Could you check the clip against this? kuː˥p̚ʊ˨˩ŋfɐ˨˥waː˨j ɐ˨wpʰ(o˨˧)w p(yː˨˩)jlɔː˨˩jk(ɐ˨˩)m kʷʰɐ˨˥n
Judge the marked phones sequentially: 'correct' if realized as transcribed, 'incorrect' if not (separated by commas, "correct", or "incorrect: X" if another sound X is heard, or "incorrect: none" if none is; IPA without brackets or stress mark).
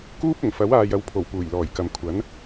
incorrect: o˨˩, incorrect: uː˨˩, incorrect: ɐ˨